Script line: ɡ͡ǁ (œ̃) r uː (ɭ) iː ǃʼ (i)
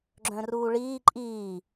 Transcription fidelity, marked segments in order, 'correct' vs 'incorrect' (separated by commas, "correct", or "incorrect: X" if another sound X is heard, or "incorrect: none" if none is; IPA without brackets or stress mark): correct, correct, incorrect: iː